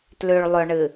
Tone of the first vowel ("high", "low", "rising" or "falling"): low